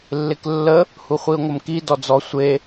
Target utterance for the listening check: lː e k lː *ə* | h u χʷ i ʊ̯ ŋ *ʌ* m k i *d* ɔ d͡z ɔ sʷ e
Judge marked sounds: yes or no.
yes, no, yes

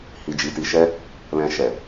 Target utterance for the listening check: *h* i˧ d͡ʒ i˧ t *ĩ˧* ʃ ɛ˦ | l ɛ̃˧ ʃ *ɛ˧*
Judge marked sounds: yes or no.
yes, no, no

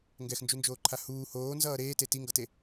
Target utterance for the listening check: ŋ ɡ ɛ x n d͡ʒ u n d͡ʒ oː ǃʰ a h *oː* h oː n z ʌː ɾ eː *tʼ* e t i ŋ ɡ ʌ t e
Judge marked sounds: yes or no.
no, no

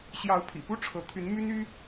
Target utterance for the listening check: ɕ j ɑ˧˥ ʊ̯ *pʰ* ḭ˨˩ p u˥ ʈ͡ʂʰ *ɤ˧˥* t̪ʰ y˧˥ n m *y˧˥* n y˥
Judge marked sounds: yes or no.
yes, yes, no

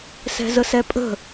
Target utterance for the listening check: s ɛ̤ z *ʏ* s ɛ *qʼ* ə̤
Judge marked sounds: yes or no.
no, no

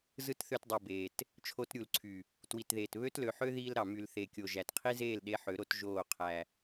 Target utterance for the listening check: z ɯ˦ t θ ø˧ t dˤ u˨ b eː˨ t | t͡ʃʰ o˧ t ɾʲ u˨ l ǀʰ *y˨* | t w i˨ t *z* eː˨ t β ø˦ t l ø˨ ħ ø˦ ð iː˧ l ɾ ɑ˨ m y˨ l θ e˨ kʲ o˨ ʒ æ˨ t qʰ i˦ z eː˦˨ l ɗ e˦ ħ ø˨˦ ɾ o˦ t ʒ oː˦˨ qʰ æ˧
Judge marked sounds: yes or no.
yes, no

